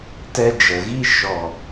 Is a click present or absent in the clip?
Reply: absent